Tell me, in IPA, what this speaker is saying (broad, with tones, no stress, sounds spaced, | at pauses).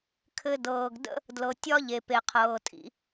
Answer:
kʰ ɘ˧ d ɤː˩ ɡ d ə̰˥ | d l ɤ˩ tʲ ɒ˥ ʎ e˩ p e˩ qʰ ɤː˩ tʼ ḭ˧